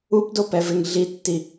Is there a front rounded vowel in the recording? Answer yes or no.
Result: no